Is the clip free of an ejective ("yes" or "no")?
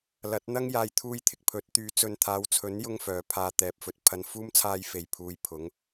yes